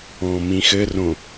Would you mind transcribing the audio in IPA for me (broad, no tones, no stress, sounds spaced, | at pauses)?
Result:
ɔ̃ m ĩ x ɘ r õ